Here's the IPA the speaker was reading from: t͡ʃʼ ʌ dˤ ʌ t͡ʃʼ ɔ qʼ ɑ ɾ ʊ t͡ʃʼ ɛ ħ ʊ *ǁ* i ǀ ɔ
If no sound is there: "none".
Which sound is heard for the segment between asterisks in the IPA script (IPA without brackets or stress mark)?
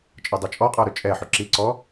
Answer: ǁ